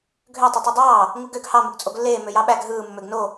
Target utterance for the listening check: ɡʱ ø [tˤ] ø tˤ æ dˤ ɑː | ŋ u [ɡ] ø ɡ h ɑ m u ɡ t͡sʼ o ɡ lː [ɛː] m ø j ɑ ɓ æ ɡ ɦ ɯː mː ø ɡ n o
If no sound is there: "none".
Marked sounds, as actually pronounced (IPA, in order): tˤ, ɡ, eː

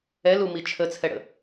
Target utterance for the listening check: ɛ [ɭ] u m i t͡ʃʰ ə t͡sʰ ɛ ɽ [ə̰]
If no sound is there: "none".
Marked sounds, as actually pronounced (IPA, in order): l, ə̰

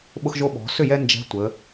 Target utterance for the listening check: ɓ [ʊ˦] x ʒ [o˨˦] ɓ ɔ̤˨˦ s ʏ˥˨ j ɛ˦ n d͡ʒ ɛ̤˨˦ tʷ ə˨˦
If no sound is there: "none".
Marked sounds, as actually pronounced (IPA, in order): ʊ˦, o˦

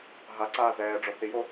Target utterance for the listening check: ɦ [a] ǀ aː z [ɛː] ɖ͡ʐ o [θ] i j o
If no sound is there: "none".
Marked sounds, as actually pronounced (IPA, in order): a, ɛː, θ

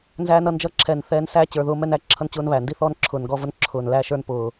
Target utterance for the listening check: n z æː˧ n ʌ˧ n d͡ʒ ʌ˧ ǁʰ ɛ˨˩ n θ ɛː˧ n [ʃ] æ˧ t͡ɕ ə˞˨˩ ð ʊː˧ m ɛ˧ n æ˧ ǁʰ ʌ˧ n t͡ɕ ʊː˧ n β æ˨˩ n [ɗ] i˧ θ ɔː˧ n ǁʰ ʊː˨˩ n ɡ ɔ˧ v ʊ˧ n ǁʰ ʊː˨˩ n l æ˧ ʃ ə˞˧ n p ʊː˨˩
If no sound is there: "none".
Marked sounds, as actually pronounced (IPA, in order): s, d

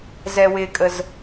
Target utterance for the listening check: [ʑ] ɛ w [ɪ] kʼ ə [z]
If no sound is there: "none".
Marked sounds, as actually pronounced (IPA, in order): z, ɪ, z

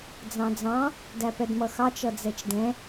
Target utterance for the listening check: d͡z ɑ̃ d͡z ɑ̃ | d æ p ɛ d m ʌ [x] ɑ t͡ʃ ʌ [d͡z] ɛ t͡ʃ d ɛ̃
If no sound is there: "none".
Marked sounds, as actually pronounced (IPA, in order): x, d͡z

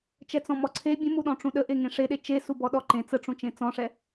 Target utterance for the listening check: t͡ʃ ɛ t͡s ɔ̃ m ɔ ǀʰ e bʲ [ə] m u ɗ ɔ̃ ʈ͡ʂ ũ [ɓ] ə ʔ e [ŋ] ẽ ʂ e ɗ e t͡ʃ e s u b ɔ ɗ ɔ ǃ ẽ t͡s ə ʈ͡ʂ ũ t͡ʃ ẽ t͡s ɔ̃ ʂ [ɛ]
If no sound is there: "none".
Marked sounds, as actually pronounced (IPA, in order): ə̃, ɗ, ŋ, ɛ

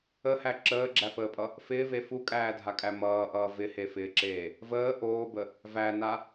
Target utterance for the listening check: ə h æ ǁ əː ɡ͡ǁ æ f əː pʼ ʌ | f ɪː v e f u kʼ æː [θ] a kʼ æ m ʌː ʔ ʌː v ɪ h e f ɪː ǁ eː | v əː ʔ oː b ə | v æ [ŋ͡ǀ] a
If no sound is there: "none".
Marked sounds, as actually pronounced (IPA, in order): dʱ, n

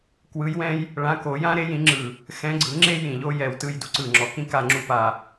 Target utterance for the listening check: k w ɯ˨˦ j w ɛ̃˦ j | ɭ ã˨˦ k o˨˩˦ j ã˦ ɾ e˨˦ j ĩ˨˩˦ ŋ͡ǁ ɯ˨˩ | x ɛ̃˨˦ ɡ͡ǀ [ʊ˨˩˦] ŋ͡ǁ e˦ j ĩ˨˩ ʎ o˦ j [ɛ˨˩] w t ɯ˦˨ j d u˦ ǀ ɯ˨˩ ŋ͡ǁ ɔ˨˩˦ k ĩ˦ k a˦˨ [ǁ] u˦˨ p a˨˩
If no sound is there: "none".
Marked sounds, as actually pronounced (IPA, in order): ɯ˨˩˦, ɛ˨˩, ŋ͡ǁ

